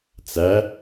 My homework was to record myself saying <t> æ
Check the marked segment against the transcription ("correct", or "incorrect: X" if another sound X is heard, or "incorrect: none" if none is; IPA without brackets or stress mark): incorrect: t͡s